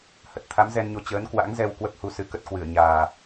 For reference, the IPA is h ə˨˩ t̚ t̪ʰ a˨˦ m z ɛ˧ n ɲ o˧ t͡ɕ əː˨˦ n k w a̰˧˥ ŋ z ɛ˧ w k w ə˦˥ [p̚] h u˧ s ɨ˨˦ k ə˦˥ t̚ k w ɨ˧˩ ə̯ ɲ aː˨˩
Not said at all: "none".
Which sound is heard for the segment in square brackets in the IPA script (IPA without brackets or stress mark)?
p̚